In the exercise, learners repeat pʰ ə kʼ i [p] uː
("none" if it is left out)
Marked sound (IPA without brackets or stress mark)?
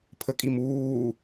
m